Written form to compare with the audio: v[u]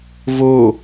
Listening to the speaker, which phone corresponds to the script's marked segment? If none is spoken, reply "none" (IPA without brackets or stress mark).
o